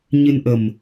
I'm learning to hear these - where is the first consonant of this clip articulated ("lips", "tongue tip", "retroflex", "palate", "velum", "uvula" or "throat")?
palate